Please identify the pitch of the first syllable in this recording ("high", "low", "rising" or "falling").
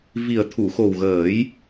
low